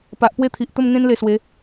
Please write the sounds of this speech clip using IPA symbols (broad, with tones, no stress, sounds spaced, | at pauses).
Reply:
p a˨ ʔ p w e˦ t̪ʰ i˨ ʔ t̪ ə˥˧ m ŋ ẽ˦ n l e˧ s w e˨˦